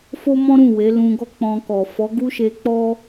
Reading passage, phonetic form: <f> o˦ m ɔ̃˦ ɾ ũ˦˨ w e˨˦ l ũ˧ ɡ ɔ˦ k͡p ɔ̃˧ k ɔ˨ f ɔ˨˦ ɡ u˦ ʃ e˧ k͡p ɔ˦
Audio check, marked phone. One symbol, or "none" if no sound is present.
f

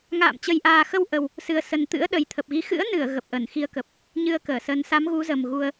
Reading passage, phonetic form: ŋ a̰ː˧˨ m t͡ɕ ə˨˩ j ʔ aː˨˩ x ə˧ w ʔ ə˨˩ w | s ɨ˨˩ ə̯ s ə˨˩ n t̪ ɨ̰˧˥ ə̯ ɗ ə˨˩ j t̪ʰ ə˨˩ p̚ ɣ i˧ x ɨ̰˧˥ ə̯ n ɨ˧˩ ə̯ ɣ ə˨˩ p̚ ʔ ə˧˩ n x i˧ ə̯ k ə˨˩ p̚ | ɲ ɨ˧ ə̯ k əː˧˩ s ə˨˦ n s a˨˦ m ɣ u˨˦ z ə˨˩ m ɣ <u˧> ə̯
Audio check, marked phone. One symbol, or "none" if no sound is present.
u˨˩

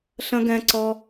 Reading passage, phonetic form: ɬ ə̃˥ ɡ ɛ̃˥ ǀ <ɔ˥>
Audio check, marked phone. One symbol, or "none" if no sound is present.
ɔ˥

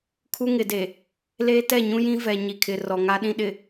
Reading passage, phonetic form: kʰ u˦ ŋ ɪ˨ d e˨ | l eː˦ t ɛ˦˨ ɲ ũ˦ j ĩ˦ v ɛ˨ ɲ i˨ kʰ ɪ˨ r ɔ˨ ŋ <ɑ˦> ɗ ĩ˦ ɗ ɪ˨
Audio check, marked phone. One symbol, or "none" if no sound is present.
a˦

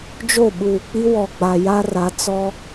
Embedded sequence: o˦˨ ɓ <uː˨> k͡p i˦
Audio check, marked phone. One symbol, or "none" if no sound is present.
uː˨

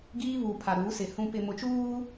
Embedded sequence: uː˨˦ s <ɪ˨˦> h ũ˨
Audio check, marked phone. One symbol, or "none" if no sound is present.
ɪ˨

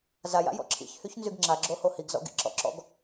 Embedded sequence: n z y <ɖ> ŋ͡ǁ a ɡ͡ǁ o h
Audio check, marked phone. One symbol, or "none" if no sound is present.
ɡ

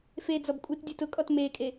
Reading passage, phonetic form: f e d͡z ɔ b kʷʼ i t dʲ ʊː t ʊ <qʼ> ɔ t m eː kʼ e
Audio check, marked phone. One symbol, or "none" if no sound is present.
kʼ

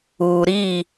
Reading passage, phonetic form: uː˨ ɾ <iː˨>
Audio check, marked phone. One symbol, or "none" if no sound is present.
iː˦˨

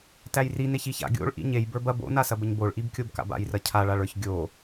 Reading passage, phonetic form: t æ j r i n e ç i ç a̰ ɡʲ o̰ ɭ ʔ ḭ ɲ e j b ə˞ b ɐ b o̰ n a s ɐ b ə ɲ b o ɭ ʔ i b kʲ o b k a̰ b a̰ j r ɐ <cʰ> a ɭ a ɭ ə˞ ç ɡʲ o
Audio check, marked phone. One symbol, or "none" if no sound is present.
cʰ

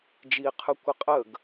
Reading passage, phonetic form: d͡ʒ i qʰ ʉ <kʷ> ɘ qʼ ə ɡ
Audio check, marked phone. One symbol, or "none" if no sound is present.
kʷ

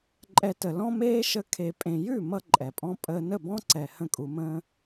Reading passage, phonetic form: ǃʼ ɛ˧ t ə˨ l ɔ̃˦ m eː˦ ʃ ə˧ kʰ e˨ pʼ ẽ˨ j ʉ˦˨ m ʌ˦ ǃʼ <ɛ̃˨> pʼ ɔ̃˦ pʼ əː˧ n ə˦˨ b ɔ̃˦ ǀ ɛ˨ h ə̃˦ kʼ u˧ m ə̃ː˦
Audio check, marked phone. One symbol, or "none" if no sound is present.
ɛ˨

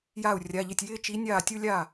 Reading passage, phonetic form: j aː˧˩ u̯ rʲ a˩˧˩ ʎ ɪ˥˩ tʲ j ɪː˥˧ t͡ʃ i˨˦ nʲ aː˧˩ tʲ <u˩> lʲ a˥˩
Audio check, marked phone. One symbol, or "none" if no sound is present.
u˥˧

